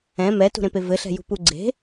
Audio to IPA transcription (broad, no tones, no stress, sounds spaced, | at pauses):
ɛ̃ m ɛ t ṳ ɾ ẽ p e v ɘ ɬ ɛ̤ j ṳ p u ɡ͡ǀ e̤